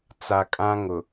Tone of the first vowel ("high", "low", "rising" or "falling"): low